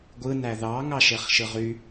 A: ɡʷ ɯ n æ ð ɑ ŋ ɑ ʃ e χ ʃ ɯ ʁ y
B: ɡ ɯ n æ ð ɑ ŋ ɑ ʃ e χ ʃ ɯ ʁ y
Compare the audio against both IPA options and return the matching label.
A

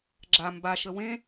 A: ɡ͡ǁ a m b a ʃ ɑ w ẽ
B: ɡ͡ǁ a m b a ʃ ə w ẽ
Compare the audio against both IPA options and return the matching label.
B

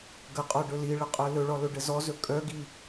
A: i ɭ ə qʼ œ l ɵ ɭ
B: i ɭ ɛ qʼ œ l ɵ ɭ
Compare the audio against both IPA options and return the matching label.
A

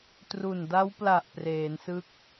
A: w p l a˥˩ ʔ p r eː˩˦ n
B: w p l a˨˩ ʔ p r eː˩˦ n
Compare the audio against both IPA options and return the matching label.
B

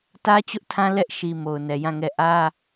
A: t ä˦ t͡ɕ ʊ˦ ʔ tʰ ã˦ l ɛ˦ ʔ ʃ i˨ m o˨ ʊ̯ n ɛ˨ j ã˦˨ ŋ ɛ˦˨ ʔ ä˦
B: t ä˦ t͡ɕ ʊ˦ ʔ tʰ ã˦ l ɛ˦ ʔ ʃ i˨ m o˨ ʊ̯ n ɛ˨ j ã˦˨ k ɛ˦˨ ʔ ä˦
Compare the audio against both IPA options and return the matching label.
A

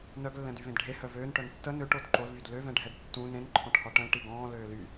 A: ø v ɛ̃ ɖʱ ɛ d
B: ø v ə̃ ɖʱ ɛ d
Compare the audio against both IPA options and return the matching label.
A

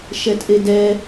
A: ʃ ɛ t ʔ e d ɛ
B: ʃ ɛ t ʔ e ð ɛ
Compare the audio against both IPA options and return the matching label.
A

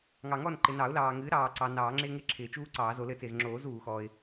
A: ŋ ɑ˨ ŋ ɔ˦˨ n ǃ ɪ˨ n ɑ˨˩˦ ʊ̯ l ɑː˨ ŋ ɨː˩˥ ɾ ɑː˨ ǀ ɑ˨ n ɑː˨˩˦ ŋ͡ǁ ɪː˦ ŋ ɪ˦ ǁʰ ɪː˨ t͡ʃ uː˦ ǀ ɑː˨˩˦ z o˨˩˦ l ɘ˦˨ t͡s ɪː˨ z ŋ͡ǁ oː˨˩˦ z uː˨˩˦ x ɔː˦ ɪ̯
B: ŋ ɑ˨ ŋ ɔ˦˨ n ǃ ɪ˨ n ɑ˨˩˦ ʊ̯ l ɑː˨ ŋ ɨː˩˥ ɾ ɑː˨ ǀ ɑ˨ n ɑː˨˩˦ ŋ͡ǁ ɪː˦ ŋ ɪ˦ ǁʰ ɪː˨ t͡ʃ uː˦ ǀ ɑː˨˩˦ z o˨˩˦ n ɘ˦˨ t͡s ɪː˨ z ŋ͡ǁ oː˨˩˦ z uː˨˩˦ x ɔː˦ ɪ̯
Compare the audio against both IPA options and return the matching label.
A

